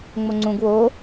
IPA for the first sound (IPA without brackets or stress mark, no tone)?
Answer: ŋ͡m